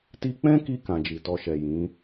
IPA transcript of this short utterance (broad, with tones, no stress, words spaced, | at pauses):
ti˧k͡pɛ̃˦ki˧ kã˨d͡ʒi˨tɔ˧ʃɛ˨ jĩ˨˦